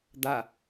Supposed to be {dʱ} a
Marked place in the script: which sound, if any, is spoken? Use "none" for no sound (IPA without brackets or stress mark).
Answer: d̪